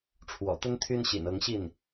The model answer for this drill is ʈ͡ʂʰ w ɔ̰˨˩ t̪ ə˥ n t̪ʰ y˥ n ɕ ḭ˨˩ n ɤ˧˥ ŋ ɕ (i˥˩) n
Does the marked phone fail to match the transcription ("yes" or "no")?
no